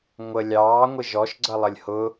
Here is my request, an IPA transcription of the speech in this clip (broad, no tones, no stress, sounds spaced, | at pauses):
ŋʷ ə lʲ ɑː ŋʷ ɪ ʒ ɔ ʃ ɡ͡ǀ ʌ lˠ ə lʲ h ʊ